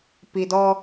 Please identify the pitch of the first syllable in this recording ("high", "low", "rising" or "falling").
low